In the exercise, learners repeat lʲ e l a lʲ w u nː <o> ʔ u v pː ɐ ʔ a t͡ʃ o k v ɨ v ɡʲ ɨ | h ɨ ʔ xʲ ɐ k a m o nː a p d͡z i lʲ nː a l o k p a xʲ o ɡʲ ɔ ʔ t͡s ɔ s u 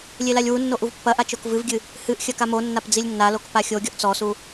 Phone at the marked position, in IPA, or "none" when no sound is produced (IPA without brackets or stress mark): o